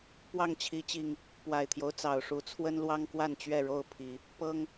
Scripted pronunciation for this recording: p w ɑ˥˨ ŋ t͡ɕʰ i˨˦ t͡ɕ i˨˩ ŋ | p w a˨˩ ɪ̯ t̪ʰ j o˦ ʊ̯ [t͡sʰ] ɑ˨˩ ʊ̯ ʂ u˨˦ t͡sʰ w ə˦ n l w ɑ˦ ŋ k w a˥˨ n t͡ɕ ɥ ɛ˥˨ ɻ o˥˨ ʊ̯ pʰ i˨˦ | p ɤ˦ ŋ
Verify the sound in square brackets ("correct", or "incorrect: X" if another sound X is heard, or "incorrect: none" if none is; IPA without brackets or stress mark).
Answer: incorrect: t͡s